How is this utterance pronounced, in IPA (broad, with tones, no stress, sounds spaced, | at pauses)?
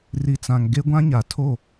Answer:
r i˨ t͡s ã˨ ŋ ɡ e˦ ɡʷ ã˦ ɲ a˨ tʰ o˦˨